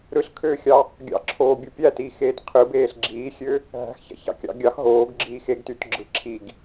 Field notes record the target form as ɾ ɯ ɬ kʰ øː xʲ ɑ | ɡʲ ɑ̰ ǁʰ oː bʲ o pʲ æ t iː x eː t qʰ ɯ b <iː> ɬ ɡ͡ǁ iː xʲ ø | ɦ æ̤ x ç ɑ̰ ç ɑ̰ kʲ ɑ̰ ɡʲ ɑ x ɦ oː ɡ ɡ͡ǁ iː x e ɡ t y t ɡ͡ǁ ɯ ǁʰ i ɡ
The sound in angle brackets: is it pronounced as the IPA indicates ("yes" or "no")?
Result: no